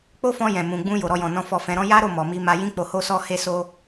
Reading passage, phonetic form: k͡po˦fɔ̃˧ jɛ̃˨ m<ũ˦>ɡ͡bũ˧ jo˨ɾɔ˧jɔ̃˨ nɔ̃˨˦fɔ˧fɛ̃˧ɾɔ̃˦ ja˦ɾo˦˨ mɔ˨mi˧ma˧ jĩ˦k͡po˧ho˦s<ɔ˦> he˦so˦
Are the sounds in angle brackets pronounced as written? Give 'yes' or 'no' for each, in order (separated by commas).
no, yes